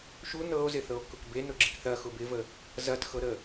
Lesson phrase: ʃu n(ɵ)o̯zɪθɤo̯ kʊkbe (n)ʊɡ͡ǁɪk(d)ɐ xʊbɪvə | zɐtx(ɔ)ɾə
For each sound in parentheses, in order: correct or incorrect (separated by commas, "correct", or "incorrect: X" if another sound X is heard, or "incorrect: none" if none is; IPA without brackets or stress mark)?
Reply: incorrect: ɤ, correct, incorrect: θ, incorrect: ɤ